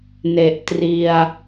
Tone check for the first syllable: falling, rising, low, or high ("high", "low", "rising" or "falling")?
low